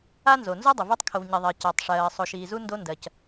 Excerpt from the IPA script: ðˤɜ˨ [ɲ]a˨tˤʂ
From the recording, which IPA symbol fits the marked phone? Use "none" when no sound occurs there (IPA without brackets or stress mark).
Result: c